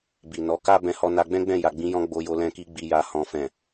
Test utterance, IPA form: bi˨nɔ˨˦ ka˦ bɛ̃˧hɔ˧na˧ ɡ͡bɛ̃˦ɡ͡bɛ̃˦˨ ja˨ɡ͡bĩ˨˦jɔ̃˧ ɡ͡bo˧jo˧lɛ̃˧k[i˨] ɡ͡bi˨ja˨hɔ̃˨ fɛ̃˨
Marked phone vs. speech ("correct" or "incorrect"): incorrect